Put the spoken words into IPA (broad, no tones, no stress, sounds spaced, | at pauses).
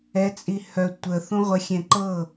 ɛ t͡sʼ i h œ tʷ ə θ ũ ʁʷ ə xʲ ɛ̃ ǃ ɤ